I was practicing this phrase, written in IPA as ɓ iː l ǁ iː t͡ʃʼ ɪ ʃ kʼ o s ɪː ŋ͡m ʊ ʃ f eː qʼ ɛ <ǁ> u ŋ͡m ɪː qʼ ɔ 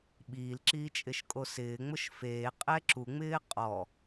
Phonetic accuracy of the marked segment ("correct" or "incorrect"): correct